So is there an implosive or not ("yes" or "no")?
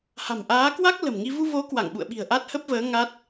yes